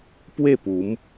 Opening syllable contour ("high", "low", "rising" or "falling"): falling